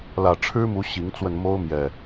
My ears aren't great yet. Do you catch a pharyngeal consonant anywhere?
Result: no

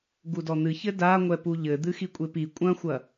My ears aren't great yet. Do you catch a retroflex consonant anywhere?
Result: no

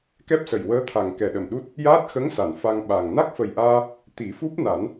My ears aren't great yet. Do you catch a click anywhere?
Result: no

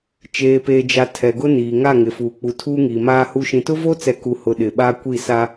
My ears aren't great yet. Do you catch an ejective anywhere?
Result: no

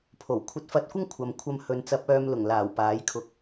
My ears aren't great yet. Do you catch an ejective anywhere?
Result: no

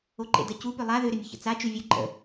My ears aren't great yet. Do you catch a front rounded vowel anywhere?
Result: yes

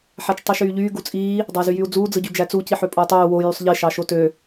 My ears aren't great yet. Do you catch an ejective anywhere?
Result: yes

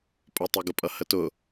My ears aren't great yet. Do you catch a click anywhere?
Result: no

